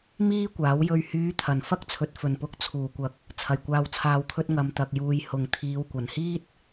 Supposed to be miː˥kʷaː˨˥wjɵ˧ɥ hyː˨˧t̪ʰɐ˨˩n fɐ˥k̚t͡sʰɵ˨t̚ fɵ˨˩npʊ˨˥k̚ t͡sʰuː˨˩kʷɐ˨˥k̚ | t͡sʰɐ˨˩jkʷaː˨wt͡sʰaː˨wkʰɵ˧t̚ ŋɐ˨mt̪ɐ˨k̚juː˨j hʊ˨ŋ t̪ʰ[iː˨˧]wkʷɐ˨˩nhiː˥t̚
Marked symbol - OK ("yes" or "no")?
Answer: yes